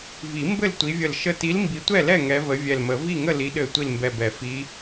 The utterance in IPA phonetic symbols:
v i˨˩˦ m b ɘ˥˨ l tʷ i˨˦ vʲ ə˧˩ l ʃ ə˧˩ t i˨˦ l m b i˨˦ tʷ ɛ˥˨ l ɛ˥˨ ŋ ɛ˨˦ v ə˨˦ vʲ ɛ˧˩ l m ə˨˩˦ v i˥˨ ŋ ə˥˨ l i˨˦ ɗ ɘ˧˩ tʷ i˥˨ l m b ɛ˧˩ b ɛ˨˩˦ f i˨˦

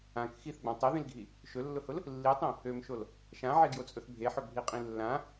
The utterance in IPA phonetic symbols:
ã k x i θ ɡ͡b ã tˤ i ð ĩ l ɡʱ i | ʃ ɵ lː ʊ h ʊ l | lː i tˤ ĩ | ø m ʃ o l | ʃ ã ʕ e ɡ j o t͡sʼ ɵ θ bʱ e ħ ɵ bʱ i qʼ ĩ lː ã

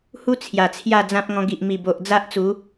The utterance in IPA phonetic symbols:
h u˦ t͡sʰ j a˨˩ t͡sʰ j a˥˧ d͡z ã˦ p̚ ŋ ɔ̃˧ ɡ i˨ ʔ m i˨˩ b o˨ ʔ d͡z a˦ ʔ t͡s u˨˦

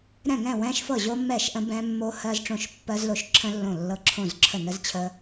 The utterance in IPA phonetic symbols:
ɾ ɛ̃˥˩ ŋ ɛ̃˥˩ w ɛ̃˦˥ ʃ f ɤ˥˩ ʑ o˦˥ mː ɛ˥˩ ʃ ʔ ə̃˦˥ b ɛ̃˦˥ mː o˦˥ h ɜ˦˥ z ʈ͡ʂ õ˥˩ ʃ pː ɜ˦˥ z l o˦˥ ʃ ǁʰ ə̃˦˥ lː õ˥˩ lː ɤ˦˥ ǁʰ õ˥˩ z ǁʰ ə˥˩ n ə˦˥ z t͡ɕʰ ə˦˥

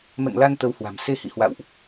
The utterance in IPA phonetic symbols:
m ɛ̰˧˨ ŋ l a˧ n t̪ ə˨˦ w h w a̤˨˩ m s e˧ h ḭ˧˨ h w a̰˧˨ w ʔ

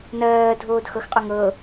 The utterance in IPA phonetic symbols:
n ɜː dʱ oː d x ɤ x qʼ o ŋ ɤ

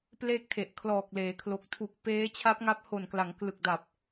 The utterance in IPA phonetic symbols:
p l e˥˩ k̚ tʰ e˨˩ ʔ kʰ l ɔː˨˩ k̚ l eː˩˦ kʰ l o˨˩ k̚ tʰ u˨˩ k̚ p eː˦˥ t͡ɕʰ a˦˥ p̚ ŋ a˦˥ p̚ h o˨˩ n k l a˩˦ ŋ k l ɯ˨˩ k̚ d a˨˩ p̚

